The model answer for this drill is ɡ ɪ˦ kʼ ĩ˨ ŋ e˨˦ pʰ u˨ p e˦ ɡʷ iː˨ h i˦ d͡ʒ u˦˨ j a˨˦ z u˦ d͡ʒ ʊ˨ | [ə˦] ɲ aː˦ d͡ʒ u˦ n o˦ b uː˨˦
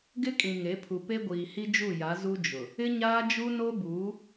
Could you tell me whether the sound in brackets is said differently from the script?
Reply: yes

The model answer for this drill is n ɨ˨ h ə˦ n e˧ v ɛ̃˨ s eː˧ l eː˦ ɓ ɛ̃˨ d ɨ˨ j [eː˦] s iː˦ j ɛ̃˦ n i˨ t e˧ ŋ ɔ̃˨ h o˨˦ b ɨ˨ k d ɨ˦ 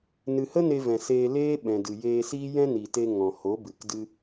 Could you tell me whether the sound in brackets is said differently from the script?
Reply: yes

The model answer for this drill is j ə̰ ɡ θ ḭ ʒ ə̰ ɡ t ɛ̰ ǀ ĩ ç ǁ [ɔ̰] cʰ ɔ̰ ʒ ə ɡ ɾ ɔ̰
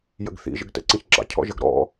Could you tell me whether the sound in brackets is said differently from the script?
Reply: yes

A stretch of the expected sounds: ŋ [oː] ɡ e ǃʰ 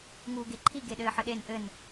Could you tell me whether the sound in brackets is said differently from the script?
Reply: yes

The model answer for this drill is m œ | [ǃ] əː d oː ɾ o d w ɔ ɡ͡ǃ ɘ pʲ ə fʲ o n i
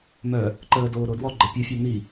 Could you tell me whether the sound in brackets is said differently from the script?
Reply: no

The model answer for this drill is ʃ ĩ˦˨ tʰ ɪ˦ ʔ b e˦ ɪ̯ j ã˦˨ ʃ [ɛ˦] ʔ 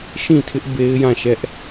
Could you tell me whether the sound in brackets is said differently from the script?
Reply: no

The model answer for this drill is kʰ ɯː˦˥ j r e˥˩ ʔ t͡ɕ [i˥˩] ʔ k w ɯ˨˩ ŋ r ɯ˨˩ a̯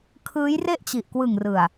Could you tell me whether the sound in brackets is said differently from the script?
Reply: yes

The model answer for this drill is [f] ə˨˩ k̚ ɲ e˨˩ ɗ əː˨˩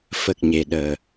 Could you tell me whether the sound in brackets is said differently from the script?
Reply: no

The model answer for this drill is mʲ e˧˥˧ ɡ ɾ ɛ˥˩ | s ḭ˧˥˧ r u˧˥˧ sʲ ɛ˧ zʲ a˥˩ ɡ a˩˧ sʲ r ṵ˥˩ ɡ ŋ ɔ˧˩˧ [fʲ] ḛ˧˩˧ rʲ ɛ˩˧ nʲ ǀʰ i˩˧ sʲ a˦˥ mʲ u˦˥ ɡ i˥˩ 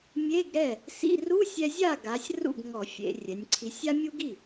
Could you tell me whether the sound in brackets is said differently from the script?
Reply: no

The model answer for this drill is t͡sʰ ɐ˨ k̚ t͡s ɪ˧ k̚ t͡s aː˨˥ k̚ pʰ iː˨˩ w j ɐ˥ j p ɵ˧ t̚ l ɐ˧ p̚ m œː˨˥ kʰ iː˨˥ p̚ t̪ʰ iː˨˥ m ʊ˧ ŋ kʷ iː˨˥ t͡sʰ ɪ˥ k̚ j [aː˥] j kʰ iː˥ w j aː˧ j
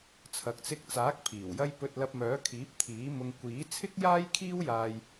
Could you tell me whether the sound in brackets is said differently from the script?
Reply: no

